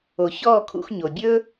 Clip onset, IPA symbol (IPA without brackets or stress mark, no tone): o